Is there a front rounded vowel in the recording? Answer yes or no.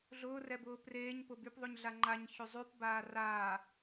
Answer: yes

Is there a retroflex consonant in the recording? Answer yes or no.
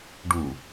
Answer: yes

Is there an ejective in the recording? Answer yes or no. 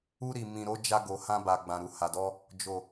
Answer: no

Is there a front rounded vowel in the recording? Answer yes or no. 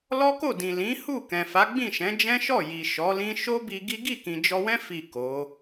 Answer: no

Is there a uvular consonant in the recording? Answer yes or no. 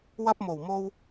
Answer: no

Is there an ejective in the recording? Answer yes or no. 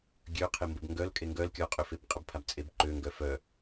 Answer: yes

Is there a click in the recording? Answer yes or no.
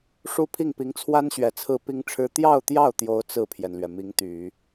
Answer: no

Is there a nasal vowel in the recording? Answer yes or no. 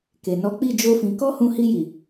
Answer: yes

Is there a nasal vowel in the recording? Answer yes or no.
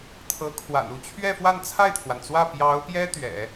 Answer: no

